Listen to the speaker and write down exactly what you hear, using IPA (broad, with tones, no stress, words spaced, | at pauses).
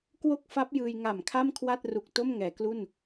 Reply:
kwo˥˩k̚fa˦˥p̚ jɯː˧j ŋa˨˩mkʰa˥˩mkʰwa˥˩t̚ru˨˩k̚ to˥˩mŋɛː˩˦klu˥˩n